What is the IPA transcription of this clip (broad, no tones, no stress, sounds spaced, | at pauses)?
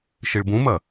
ʃ i ɭ b ũ m ɐ